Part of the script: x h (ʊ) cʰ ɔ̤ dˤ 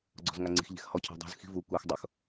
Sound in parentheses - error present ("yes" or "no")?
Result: yes